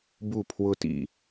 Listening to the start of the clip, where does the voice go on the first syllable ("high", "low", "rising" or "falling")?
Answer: falling